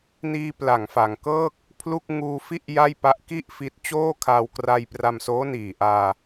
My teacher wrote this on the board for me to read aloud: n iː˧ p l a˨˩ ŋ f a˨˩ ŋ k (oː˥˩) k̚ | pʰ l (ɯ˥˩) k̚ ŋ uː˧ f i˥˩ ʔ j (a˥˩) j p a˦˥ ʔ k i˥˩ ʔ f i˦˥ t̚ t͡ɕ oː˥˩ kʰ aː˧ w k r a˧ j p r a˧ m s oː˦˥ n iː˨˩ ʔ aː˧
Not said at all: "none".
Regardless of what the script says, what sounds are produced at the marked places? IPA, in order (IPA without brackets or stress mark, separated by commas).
ɤː˥˩, u˥˩, a˥˩